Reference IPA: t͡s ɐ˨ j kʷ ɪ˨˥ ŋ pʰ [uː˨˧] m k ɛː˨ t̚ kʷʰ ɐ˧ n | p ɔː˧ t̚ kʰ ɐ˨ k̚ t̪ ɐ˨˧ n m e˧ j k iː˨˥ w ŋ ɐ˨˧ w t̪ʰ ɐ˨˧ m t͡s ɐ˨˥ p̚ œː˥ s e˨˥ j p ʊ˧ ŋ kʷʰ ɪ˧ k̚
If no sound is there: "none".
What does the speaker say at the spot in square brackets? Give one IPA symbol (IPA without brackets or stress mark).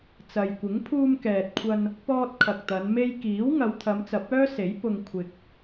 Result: uː˧